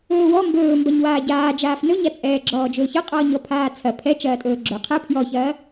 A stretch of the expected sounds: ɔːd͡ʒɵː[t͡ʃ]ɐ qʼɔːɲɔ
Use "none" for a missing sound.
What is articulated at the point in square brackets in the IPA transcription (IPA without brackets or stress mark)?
ç